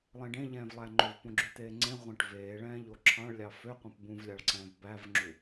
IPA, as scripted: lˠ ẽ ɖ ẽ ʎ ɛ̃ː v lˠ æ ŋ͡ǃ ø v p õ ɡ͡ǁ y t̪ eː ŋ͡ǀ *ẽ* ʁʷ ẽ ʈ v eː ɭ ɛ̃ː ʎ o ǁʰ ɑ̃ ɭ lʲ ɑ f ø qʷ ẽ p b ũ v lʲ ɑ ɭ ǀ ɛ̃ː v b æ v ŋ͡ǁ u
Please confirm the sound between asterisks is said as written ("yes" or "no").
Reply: yes